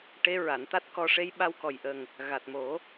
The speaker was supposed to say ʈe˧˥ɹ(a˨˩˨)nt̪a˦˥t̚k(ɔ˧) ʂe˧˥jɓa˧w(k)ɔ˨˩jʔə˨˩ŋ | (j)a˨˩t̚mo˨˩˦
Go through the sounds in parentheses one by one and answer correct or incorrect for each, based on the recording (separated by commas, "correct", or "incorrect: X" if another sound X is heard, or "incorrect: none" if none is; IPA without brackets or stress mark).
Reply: correct, correct, correct, incorrect: ɣ